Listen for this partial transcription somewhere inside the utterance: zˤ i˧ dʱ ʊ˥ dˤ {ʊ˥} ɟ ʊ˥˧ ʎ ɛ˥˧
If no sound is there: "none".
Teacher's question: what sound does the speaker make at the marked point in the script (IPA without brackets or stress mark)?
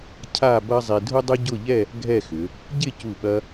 ʊ˥